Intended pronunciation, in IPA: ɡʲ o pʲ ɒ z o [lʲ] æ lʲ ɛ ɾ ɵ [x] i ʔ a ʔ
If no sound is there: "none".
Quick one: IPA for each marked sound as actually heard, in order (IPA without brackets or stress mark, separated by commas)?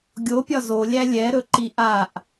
lʲ, ǃ